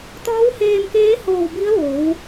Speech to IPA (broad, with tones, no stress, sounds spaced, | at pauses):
t̪ ɔː˧˥ w h eː˧ m k eː˧˥ h oː˧˩ w b i˧˥ ə̯ ʋ oː˩˧ w